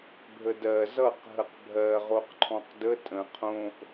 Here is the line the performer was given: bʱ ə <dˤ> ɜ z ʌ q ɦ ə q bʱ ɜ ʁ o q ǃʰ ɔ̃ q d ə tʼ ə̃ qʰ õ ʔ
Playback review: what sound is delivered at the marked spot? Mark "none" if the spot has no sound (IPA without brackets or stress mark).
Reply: d